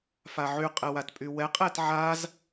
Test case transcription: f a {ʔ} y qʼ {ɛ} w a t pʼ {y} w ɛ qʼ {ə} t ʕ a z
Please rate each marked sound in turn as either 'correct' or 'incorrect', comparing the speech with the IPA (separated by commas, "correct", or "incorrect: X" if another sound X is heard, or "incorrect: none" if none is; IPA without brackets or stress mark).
incorrect: ʕ, correct, correct, incorrect: ɛ